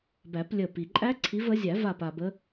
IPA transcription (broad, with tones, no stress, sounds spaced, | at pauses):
b æ˨˩˦ p lʲ ə˧˩ p i˩ ǃʼ æ˦˥ ǀʰ i˨˦ v ə˨˦ zʲ æ˨˩˦ v a˧˩ p a˩ b ə˨˦